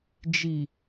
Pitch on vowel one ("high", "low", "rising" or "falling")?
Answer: low